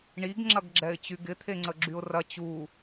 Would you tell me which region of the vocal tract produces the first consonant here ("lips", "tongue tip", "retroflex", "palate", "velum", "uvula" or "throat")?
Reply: retroflex